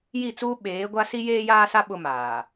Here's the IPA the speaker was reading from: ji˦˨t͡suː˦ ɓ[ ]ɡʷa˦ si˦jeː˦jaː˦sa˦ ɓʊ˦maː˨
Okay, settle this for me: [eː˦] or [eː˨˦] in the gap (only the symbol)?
eː˨˦